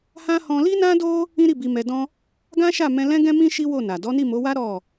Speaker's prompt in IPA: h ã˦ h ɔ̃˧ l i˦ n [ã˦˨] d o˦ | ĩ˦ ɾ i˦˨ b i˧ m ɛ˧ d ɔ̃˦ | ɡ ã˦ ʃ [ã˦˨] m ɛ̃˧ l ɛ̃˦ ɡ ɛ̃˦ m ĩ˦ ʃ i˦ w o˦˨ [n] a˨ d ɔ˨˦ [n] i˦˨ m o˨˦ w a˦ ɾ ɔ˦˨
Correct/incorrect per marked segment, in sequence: incorrect: ã˦, incorrect: a˦˨, correct, correct

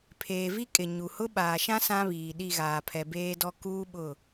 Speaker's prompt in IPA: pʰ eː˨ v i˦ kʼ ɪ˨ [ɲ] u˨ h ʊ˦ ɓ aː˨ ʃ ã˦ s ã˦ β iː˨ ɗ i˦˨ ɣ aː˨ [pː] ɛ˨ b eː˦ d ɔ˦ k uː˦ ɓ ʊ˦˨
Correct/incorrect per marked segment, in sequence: correct, incorrect: pʰ

